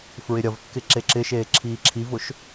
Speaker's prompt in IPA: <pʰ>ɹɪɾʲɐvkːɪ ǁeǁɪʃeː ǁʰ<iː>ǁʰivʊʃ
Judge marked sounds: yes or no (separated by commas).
no, yes